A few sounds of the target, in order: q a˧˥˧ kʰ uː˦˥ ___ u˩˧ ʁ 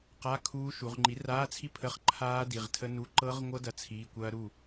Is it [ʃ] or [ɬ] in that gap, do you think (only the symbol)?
ʃ